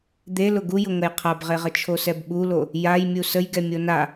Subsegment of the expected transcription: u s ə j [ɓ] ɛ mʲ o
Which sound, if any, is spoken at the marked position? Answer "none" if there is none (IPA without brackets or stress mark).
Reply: ɡ